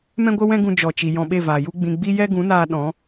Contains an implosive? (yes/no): yes